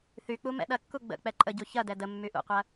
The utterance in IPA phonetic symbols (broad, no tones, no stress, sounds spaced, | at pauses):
θ y k͡p u m ɛ̰ ɗ ɐ kː u ɡ͡b ə̰ k͡p ɛ ǃʼ ə ɟ u ç ɐ d ɛ d ə mː y ʔ ṵ qʷ ɐ